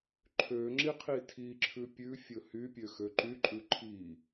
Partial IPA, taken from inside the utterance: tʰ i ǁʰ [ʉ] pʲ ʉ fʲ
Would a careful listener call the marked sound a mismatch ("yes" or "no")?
no